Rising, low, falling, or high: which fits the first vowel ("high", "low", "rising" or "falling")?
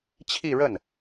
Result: falling